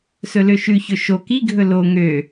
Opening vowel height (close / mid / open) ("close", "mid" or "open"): mid